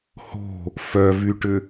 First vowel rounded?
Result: yes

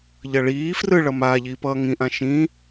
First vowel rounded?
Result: no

